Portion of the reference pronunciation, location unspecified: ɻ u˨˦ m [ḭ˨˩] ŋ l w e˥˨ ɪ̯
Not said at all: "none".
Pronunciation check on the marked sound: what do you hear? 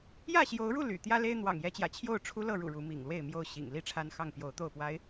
ḭ˨˩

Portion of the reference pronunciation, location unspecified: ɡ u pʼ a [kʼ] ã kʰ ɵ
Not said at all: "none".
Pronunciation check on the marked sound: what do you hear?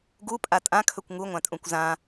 tʼ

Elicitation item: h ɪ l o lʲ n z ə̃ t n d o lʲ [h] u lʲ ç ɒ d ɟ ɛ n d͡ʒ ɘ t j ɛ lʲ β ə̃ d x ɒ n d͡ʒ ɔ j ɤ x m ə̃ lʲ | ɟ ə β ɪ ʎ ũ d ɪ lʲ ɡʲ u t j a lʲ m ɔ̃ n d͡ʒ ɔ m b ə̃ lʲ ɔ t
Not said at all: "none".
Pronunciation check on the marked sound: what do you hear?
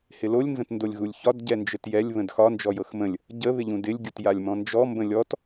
ɣ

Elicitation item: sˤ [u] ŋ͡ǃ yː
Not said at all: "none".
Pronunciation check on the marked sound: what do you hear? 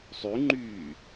y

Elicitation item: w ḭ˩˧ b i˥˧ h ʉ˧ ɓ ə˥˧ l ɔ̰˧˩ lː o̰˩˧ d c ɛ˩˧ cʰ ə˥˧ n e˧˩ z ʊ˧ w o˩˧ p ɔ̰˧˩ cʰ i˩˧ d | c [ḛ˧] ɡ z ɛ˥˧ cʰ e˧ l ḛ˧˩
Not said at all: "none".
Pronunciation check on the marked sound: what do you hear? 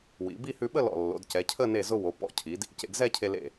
ḛ˧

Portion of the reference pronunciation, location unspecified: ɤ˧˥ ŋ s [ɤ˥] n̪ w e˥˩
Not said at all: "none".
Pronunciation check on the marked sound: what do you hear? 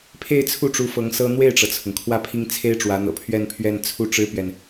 ɤ˥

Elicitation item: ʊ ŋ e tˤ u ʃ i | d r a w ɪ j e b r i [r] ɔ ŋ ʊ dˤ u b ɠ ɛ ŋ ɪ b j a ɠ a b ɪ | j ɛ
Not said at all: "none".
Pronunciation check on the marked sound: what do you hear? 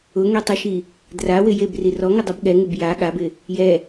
r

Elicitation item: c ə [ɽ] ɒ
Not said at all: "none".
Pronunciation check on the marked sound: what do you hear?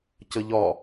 ʎ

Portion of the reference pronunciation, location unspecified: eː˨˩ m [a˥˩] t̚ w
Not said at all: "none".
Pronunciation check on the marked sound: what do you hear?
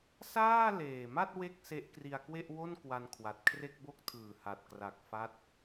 a˥˩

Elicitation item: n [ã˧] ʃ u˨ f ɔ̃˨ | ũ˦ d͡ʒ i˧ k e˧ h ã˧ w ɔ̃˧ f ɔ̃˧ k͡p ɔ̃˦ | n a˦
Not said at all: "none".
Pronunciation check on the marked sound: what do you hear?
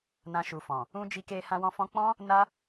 ã˧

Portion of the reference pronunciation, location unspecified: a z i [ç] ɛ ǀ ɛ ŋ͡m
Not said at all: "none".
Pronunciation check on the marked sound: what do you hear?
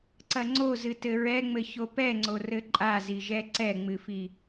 ʒ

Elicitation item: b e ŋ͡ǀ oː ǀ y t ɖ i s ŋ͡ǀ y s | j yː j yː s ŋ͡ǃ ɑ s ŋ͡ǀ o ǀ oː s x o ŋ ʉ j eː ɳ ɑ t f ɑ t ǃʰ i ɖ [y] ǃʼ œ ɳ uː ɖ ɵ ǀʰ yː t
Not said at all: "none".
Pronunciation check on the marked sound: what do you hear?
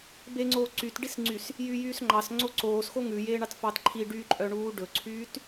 y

